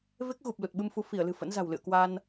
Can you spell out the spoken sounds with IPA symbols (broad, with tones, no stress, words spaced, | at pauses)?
ve˦˥k̚ɣu˨˩p̚ lu˨˩t̚ɓɨ˧mfu˧ fi˧˩ə̯lɨ̤˨˩ fə̰˧˥nza̤˨˩w lɨ̰˧˨ə̯kwa˧n